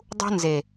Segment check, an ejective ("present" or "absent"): absent